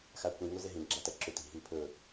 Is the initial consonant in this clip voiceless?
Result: yes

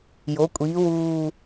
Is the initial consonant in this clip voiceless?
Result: no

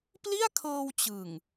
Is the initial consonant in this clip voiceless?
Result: yes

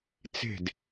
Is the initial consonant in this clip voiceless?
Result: yes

